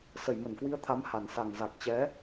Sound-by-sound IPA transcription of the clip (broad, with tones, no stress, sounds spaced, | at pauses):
s ə˧˩ j m ə˧˩ n k w i˨˦ ə̯ t̪ʰ a˨˦ m h a˧˩ n s a˨˩ ŋ z a˨˩ k̚ t͡ɕ ɛ˨˦